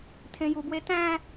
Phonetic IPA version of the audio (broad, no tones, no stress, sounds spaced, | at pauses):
tʰ ẽ j u b w e t æ̃